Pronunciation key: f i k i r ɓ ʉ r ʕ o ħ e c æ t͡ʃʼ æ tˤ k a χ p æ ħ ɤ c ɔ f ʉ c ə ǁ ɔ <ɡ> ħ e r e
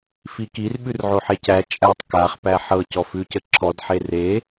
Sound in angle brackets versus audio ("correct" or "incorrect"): incorrect